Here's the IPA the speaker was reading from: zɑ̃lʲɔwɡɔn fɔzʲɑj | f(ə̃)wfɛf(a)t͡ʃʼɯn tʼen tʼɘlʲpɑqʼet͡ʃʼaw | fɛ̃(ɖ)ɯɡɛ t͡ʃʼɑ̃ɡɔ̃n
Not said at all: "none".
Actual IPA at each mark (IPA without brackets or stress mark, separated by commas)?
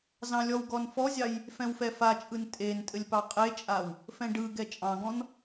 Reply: ɛ̃, a, ɖ